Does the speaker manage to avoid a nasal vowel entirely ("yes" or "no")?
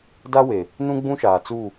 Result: no